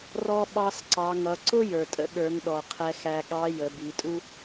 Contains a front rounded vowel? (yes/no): no